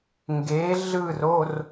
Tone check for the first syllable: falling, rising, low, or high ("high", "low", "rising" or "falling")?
rising